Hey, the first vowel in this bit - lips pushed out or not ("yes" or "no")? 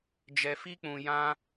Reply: no